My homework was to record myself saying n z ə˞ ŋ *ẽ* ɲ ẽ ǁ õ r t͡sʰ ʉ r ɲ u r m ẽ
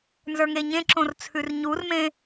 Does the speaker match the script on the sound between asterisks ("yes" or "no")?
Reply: no